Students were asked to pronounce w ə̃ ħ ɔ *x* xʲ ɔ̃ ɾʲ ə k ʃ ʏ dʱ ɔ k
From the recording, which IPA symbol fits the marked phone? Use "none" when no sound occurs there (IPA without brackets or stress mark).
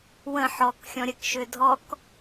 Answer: k